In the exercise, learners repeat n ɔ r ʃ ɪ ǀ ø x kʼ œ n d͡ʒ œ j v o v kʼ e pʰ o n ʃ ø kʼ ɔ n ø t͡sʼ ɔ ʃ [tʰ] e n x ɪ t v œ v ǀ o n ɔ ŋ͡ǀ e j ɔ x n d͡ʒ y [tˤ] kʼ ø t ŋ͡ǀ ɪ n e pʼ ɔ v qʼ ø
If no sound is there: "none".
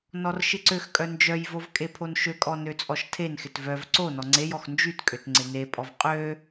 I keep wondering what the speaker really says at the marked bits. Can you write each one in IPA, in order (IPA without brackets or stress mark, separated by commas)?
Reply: tʰ, t